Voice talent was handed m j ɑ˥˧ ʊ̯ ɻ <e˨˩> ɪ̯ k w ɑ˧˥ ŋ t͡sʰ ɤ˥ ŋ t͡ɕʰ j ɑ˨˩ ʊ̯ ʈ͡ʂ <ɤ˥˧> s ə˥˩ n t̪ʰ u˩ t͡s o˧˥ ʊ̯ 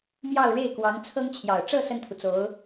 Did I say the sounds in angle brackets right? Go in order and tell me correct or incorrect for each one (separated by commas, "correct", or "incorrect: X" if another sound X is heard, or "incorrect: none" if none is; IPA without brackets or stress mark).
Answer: incorrect: e˥˩, correct